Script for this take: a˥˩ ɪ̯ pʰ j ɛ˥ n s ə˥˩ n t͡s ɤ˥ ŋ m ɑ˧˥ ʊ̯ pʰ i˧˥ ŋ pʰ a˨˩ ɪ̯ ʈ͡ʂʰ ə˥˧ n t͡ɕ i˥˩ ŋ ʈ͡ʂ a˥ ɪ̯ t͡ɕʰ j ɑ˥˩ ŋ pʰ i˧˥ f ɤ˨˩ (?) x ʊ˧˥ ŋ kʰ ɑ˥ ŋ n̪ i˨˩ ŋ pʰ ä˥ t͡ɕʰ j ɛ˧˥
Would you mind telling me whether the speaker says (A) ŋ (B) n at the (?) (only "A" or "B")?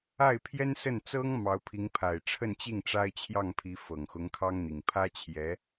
A